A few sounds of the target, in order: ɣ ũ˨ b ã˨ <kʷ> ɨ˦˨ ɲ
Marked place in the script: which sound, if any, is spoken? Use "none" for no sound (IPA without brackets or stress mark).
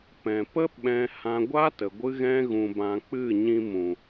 k͡p